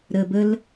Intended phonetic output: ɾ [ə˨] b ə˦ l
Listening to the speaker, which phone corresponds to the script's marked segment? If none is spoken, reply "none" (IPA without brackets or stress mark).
ə˨